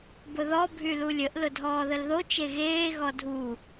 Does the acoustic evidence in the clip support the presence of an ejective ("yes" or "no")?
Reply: no